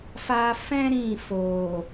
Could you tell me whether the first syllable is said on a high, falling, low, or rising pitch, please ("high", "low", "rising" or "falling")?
high